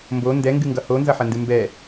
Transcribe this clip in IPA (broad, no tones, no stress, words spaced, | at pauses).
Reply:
mbo ndɛŋɡɨŋɡʌ honzʌħɐndɨ mbɛ